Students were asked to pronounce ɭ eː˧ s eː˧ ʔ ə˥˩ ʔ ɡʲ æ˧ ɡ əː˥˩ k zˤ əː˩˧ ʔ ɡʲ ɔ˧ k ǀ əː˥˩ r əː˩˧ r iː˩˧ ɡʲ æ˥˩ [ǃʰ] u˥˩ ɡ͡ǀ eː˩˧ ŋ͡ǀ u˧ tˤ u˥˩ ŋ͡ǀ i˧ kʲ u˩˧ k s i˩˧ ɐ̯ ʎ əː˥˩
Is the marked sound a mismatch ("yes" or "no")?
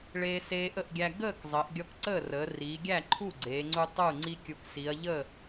no